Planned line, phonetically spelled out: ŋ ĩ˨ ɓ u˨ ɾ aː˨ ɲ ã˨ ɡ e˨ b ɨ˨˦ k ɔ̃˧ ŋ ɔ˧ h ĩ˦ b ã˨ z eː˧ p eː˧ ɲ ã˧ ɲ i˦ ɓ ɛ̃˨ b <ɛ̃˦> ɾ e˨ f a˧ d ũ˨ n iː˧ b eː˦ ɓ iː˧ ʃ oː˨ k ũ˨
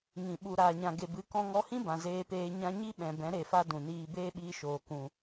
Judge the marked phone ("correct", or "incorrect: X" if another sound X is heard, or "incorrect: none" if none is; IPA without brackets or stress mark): incorrect: ɛ̃˨˦